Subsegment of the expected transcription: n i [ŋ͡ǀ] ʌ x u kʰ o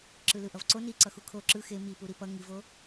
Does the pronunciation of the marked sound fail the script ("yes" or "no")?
yes